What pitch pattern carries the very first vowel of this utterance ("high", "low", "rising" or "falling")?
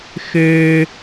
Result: high